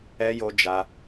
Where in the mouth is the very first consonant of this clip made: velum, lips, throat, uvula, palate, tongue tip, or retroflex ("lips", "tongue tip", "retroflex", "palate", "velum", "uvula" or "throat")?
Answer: palate